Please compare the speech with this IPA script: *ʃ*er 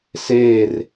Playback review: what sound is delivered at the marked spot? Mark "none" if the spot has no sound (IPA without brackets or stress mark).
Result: s